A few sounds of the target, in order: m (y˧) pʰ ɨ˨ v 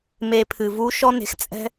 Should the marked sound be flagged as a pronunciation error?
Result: yes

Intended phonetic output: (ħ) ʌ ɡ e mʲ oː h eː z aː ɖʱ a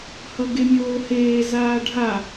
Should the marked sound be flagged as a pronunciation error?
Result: yes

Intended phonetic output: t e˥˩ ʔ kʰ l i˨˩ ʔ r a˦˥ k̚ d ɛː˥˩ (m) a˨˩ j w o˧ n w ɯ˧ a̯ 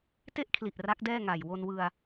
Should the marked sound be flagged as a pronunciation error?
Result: yes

